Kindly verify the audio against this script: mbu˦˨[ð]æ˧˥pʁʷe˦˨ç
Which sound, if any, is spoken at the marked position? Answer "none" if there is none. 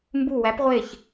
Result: w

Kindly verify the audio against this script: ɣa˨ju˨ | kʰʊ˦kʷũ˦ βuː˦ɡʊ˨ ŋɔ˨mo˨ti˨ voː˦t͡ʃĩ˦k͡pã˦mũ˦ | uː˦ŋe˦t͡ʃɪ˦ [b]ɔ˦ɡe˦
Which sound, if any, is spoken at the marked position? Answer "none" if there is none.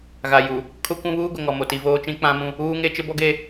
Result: b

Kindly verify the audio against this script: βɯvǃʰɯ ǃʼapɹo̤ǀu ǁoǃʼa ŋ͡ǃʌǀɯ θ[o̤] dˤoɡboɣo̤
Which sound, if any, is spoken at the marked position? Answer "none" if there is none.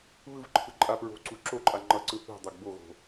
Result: ṳ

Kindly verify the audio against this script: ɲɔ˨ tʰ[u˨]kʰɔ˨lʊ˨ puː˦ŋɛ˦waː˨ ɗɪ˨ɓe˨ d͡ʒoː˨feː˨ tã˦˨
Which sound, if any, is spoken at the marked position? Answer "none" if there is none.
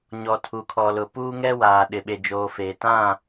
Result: u˨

